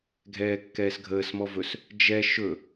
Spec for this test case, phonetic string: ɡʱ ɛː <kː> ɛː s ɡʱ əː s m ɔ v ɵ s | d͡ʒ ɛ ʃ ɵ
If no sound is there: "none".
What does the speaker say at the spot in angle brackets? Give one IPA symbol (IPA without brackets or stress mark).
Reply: kː